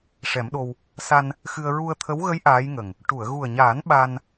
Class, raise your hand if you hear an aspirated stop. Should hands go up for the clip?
yes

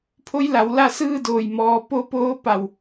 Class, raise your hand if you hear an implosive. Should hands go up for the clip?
no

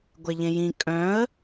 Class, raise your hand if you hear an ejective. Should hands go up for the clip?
yes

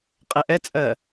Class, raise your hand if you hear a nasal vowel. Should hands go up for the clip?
no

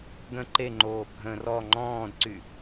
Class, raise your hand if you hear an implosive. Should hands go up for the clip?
no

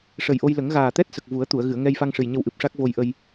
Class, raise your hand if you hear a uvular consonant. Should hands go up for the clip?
no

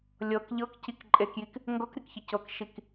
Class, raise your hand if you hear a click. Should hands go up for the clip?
yes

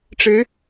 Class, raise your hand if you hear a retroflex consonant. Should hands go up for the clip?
yes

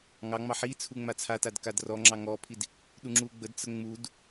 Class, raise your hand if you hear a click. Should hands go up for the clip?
yes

